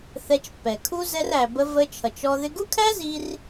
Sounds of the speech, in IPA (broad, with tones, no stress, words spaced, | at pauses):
θɛ˧t͡ʃpːɛ˩kʰu˥ zɛ˧ræ˩bə˧ və˧t͡ʃʰʌ˩t͡ʃɔ˧ ðɪ˧ɡu˥kʰæ˥zi˧r